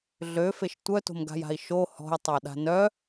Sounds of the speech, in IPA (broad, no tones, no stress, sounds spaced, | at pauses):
ɮ ø f e ʃ tʷ œ t o̤ m ɡ a̤ j a̤ i̯ ʃ o h ɔ̤ j tˤ a ɗ a̤ n œ